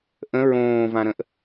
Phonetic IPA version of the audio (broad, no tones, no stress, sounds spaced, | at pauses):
ʔ ə̃ ɹ õː v ã ɾ ə̃ ʔ